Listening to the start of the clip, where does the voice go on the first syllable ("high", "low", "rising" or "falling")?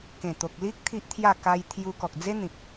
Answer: low